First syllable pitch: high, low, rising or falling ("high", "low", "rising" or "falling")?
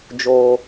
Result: high